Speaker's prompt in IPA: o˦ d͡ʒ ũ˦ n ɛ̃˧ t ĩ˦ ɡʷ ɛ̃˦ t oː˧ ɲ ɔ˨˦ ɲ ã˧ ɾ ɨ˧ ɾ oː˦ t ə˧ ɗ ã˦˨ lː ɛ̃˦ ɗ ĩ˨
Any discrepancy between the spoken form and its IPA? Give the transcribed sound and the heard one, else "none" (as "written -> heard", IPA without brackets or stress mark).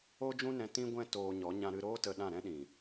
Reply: lː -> ɾ